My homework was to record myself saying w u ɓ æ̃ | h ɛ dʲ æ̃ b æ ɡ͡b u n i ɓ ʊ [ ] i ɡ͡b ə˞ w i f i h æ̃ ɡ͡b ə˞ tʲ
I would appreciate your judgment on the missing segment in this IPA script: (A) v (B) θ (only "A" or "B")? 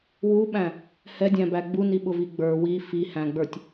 A